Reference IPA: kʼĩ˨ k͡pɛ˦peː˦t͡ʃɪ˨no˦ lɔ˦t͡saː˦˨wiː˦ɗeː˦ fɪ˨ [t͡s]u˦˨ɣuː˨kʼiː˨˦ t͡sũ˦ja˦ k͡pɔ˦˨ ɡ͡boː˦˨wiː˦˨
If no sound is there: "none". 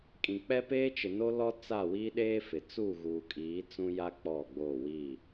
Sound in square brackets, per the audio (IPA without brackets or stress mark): t͡s